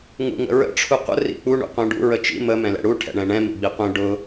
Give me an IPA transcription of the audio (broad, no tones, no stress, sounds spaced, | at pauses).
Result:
ŋ ṵ ŋ ə̰ ɹ ə̰ ʈ͡ʂʰ u qʷ ə̰ r ḭ k͡p u ɳ ṵ qʷ ɛ̃ ɖ ṵ ɹ ə t͡ʃ ḭ m ə m ɛ̃ l ɛ̰ ɽ u ʈʰ ɛ̰ ɳ ɛ̃ ɳ ɛ̃ m ḭ ɡ͡b i qʷ ɛ̃ ɖ ʊ